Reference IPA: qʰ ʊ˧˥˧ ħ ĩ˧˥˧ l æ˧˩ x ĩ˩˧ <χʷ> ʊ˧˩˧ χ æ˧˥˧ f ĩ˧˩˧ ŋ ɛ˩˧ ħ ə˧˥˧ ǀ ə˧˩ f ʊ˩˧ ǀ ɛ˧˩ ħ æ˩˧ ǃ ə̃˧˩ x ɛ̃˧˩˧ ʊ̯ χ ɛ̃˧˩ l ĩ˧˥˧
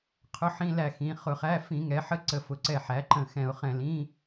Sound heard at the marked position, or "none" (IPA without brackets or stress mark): χ